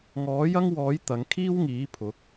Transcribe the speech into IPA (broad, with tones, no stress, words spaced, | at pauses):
ŋɔː˨˥jɐ˥ŋwɔː˨˥j t̪ɐ˨˧ŋ kʰiː˥wŋiː˨˥ pʰʊ˨˥k̚